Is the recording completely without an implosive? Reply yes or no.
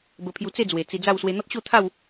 yes